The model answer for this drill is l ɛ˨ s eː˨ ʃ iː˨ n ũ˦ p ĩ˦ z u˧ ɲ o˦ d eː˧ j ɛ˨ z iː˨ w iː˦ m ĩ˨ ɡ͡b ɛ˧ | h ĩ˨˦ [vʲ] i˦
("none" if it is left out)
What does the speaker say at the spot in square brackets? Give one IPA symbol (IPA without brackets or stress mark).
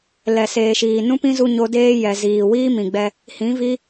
v